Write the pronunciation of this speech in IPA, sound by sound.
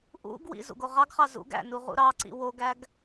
ʔ ṵ ɡ w ḭ z ṵ ɡ o ʁ ɑ ɡ χ ɑ z ṵ ɡ æ̰ n u ʁ ṵ ɾ ɑ ǀ ḭ w o ɡ æ ɡ

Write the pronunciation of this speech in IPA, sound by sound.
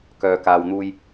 k œː˨ k aː˨ w n̪ uː˧ j

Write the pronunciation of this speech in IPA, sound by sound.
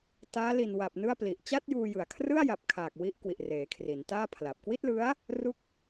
t aː˦˥ l i˨˩ n w a˨˩ p̚ n ɯ˥˩ a̯ p l i˨˩ ʔ t͡ɕ a˥˩ t̚ j uː˧ j ɯ˨˩ a̯ kʰ r ɯ˥˩ a̯ j a˨˩ p̚ kʰ aː˨˩ k̚ w i˦˥ ʔ k w i˨˩ ʔ r eː˩˦ kʰ r i˩˦ n t aː˥˩ pʰ l a˨˩ p̚ k w i˥˩ t̚ l ɯ˦˥ a̯ | r u˥˩ k̚

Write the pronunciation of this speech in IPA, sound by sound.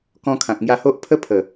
k ɔ̃˧ kʰ ã˨ k̚ ŋ j a˧ h o˦ ʔ pʰ ə˦ pʰ ə˨˩

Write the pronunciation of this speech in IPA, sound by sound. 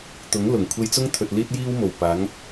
t̪ ʊ˨˥ ŋ l ʊ˨˩ ŋ kʷʰ e˧ j t͡s ʊ˥ ŋ t̪ʰ ɵ˨ t̚ l iː˥ t̚ j iː˥ w m o˨˩ w p aː˨˥ ŋ

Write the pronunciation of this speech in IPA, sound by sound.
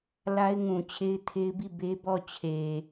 l a˦ ɪ̯ ŋ ũ˨ t͡ɕʰ e˦ ɪ̯ tʰ e˦ ɪ̯ b i˦˨ b e˦ b ɔ˦˨ t͡ɕʰ e˨

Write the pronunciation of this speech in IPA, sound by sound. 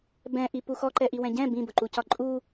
b ɛ̃ ʔ i p u x ɔ ǃ ɛ ʔ i w ɛ̃ ɟ ɛ̃ b ĩ b ʊ ǃ u c ɒ ǃʼ u

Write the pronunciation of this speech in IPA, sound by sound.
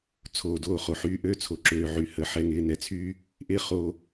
t͡sʰ oː˨ d oː˦˨ χ o˨ ħ yː˧ ʔ øː˧ t͡sʰ o˨ ǁ øː˨ ʕ y˨ h ə˨ ħ ɛ˨ ŋ ɪː˨ n ɛ˨ t͡sʰ yː˦ | ʔ ɪː˦ χ oː˦

